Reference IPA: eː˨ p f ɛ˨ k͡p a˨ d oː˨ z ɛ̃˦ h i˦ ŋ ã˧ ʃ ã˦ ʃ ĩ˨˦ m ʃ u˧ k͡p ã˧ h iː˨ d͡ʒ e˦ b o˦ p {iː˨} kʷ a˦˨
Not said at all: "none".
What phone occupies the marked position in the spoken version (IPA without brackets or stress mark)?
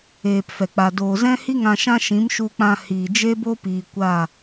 iː˨